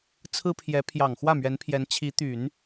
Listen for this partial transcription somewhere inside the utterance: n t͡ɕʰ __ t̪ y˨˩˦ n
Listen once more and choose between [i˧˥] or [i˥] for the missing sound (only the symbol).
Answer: i˧˥